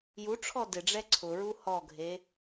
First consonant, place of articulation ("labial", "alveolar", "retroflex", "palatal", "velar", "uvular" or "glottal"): palatal